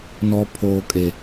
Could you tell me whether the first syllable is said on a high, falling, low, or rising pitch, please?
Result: high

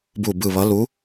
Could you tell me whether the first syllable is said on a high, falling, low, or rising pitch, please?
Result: falling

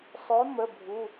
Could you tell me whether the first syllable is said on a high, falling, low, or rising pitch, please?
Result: rising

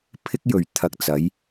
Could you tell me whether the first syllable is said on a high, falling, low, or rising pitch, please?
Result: high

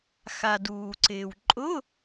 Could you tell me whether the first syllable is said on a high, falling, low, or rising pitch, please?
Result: low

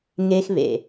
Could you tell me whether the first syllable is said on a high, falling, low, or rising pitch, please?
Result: high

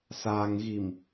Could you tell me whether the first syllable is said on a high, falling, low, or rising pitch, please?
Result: low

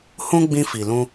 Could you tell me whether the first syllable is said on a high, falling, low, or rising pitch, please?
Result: high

